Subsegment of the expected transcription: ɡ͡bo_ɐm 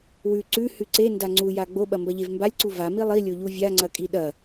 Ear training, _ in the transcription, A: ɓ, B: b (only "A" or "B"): A